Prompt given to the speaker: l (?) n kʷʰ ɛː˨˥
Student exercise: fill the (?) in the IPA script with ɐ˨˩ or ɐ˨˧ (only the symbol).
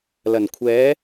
ɐ˨˩